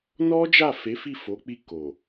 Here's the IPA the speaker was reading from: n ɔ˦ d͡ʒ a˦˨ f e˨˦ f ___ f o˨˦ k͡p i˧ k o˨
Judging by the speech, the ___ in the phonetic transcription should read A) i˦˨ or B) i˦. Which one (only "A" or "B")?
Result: A